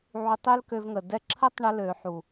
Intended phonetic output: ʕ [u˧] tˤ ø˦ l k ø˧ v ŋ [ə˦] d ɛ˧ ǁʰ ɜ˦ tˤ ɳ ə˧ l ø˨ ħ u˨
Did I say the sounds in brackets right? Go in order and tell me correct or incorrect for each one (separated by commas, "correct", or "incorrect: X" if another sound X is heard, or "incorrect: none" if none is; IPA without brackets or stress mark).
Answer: correct, incorrect: ə˨